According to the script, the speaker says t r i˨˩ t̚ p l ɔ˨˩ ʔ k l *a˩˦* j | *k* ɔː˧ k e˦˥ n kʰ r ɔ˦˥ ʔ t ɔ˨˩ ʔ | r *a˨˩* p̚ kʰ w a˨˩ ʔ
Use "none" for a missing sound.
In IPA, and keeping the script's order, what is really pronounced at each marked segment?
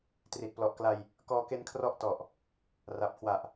a˧, k, a˨˩

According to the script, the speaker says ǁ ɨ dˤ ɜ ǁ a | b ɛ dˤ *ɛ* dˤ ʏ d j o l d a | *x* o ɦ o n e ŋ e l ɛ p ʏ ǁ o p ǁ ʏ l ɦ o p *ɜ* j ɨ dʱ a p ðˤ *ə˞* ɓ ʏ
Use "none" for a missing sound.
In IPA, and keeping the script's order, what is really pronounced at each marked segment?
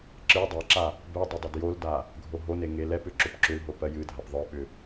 ʏ, ɡʱ, ɜ, ə˞

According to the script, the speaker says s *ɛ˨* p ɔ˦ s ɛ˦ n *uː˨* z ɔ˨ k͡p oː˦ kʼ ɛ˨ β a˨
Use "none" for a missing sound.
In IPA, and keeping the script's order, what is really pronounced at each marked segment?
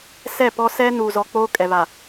ɛ˦˨, uː˨

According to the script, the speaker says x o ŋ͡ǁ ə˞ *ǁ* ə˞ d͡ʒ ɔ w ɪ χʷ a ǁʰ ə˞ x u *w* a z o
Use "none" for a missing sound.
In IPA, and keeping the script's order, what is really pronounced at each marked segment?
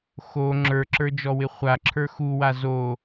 ǁ, w

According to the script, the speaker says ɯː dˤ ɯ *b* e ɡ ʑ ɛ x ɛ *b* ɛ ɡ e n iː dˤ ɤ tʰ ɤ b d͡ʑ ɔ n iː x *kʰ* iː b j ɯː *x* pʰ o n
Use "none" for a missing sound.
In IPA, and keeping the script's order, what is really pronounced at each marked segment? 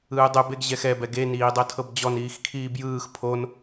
b, b, kʰ, x

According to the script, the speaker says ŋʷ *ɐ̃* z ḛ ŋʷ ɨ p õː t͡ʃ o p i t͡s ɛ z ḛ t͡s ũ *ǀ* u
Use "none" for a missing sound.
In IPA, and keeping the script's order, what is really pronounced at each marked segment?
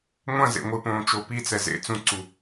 ɐ̃, ǀ

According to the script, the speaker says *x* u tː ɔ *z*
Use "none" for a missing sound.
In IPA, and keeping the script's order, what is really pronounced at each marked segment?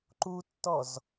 ǃ, z

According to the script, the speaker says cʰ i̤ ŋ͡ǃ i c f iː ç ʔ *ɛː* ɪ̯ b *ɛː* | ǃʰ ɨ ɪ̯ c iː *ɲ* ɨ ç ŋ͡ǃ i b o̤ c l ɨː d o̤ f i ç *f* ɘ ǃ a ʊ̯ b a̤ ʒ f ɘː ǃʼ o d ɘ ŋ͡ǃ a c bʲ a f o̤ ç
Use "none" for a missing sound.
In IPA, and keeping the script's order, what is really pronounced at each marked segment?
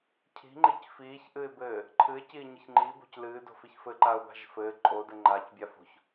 ɨː, ɘː, ɲ, f

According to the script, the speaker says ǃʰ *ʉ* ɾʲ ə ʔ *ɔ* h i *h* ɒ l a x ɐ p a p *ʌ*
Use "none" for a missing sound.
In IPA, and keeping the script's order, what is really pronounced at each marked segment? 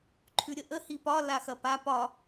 ʉ, ə, p, ɒ

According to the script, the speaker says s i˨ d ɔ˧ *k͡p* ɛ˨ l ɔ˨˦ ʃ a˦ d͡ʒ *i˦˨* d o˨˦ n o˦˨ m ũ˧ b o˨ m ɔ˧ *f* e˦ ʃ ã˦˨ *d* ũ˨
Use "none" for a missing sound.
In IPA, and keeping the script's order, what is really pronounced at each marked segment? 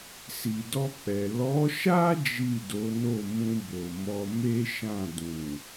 k͡p, i˦˨, m, d

